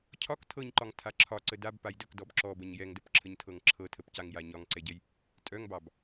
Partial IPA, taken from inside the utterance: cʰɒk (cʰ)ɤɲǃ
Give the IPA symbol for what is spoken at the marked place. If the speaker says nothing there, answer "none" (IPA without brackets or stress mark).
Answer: tʰ